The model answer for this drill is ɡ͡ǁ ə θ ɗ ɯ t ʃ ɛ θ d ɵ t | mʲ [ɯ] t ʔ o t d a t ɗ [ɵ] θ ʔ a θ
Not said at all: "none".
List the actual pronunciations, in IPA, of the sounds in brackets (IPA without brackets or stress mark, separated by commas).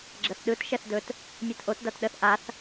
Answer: ɯ, ə